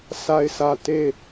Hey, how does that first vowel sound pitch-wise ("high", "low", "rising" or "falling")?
high